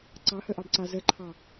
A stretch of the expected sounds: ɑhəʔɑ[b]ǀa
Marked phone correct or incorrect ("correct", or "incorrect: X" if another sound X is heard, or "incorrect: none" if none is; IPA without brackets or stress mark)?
correct